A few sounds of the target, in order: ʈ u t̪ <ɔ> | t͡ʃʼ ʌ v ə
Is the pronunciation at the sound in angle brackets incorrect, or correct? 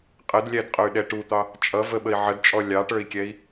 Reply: incorrect